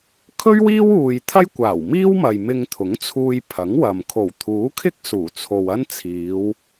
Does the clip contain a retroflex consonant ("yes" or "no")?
no